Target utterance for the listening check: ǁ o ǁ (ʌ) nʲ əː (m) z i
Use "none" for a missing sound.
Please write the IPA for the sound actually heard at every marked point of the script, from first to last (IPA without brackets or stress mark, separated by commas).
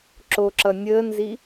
ʌ, n